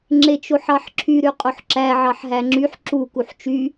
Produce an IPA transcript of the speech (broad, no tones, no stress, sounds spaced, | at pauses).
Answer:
ŋ͡ǁ e t͡ʃ o ħ ɑ ħ ǁʰ y ɾ y qʼ o ħ ǁ æ ʕ ɑ ħ ɦ æ ŋ͡ǁ y ħ ǁ u k u ħ t͡ʃ y